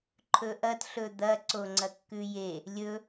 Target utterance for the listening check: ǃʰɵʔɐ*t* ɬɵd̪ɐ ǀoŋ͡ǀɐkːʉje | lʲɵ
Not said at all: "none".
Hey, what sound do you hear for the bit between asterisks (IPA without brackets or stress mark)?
t